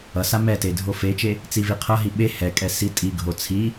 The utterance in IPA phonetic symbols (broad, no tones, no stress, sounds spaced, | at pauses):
ʌ s a m ɛ t e dʱ o f e t͡ʃ e | t͡s i v i qʰ ʌ ɦ i ɓ e h ɛ kʼ ɛ s i tʼ i ɡʱ o t͡sʰ i